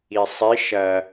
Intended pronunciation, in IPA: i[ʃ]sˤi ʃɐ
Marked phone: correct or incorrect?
incorrect